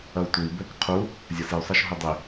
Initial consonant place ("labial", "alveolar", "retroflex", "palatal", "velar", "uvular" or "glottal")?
alveolar